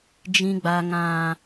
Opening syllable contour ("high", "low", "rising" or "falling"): high